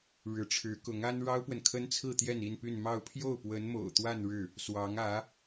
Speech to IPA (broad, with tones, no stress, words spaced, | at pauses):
ɻɻ̩˧˥ʈ͡ʂʰɻ̩˧˥kʊ˧˥ŋa˥n ɻɑ˥ʊ̯pwə˨nkʰə˥nt͡sʰɹ̩˥˧ t̪jɛ˥˧ni˥˧npy˥˧n mɑ˥˧ʊ̯ pʰjo˥˩ʊ̯pwə˧˥n mo̰˨˩ʊ̯t̪wa˥˧n ɻɻ̩˥˩ | swɑ˧˥ŋä˧˥